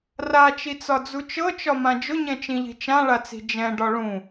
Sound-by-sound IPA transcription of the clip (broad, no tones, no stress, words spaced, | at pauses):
rat͡ʃit͡sɒd͡zu t͡ʃɤt͡ʃɒmã d͡ʒʊɲɛ̃t͡ʃĩʎi̤ t͡ʃãɭat͡si̤ d͡ʒɛ̃ɖɒ ɭũ